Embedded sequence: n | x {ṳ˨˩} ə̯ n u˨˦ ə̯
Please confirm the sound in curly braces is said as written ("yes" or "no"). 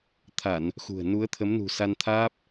yes